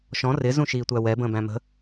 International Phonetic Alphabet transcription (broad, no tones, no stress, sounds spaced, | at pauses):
ʃ ɔ̃ r ɪ z ũ ʃ iː tʷ æ w ɛ b ə̃ː b æ̃ m ə̤